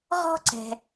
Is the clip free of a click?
no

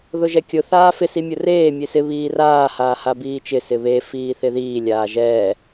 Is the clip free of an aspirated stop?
yes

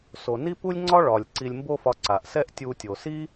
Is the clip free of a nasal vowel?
yes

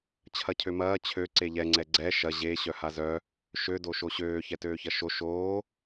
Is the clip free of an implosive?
yes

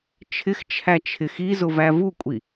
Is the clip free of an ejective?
no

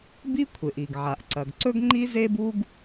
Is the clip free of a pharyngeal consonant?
no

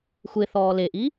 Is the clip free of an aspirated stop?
yes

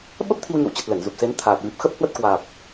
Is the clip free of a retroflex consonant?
yes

